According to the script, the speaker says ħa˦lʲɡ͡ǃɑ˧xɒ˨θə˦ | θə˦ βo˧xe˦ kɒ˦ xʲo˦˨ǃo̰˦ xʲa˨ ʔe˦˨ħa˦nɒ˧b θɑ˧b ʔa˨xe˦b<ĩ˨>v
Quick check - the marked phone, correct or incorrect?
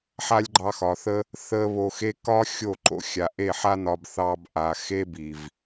incorrect